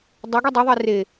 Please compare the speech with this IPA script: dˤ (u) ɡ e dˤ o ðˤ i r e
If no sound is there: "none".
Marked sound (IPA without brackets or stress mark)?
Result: o